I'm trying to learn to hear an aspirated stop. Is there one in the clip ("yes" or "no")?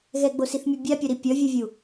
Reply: no